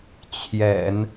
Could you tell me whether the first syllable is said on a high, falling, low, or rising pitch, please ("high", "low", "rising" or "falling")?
low